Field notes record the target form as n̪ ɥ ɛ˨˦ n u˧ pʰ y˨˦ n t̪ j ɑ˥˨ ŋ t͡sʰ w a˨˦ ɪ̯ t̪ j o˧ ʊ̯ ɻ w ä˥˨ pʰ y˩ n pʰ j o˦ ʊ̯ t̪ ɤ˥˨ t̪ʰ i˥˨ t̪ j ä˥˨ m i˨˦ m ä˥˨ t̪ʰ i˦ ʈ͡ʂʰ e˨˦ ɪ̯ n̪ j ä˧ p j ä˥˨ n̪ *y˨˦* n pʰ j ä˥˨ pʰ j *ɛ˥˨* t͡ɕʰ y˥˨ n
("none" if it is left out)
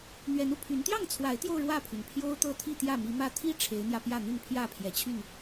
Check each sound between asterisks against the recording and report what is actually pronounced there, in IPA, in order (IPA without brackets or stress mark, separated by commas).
y˥˨, ɛ˨˩